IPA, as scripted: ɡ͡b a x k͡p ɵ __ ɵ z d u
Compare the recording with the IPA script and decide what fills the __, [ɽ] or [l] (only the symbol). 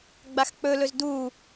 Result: l